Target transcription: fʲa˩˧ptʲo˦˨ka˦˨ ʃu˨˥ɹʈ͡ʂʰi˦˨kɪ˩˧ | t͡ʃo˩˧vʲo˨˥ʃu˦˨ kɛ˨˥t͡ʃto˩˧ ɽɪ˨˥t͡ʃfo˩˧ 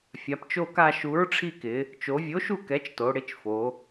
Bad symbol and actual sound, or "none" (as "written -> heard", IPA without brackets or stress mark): tʲ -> t͡ʃ